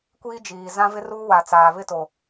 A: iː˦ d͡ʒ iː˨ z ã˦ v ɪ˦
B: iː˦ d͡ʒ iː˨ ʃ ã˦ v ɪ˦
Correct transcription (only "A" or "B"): A